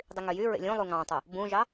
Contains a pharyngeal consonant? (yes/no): no